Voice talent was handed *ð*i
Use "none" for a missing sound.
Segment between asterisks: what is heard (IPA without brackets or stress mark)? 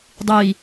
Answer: dˤ